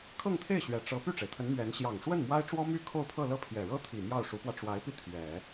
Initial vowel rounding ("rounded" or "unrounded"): unrounded